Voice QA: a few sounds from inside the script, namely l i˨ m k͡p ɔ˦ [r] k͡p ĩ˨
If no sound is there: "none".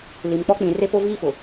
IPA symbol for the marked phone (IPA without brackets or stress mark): none